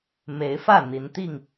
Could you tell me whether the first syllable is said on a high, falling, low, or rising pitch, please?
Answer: rising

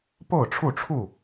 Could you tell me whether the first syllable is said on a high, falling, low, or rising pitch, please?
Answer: falling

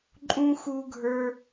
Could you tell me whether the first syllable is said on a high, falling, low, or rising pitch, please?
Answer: high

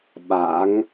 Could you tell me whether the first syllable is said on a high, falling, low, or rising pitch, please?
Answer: rising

